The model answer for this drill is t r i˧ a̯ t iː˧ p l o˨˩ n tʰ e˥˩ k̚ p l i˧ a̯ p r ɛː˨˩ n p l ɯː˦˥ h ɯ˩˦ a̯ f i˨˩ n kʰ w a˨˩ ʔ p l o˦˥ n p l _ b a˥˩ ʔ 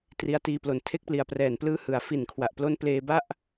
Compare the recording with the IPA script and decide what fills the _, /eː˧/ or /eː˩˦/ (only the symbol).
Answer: eː˧